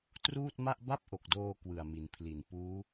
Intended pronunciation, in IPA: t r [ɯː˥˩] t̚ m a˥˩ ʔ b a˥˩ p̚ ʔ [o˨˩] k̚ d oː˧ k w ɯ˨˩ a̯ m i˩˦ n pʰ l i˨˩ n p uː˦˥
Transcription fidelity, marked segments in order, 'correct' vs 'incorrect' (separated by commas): incorrect, correct